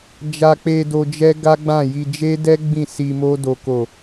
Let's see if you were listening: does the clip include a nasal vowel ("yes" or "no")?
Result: yes